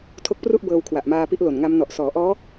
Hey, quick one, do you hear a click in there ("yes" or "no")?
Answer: no